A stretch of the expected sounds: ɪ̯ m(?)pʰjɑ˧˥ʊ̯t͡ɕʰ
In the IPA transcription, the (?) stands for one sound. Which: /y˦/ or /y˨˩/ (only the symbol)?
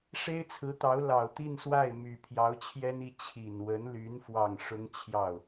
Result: y˨˩